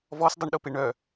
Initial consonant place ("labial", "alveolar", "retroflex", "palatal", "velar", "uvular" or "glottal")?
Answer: labial